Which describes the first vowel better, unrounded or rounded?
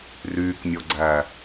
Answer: rounded